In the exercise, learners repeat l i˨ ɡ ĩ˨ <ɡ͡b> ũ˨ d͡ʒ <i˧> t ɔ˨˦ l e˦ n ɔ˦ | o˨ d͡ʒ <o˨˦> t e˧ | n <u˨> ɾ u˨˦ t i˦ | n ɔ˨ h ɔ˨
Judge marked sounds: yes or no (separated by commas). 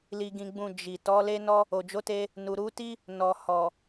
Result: yes, no, yes, yes